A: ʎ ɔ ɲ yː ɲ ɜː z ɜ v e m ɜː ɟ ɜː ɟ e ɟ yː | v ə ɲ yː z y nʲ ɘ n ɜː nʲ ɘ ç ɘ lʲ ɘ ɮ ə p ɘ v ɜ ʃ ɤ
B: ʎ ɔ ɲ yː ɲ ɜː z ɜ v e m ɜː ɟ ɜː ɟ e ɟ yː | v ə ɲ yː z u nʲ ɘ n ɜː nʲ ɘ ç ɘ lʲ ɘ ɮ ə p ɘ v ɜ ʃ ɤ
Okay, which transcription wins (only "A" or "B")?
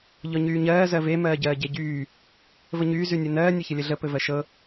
A